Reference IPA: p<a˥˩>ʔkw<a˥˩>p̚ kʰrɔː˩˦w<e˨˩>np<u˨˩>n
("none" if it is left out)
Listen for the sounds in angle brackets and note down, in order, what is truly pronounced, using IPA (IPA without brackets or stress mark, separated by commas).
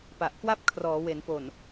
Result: a˨˩, a˥˩, e˩˦, o˨˩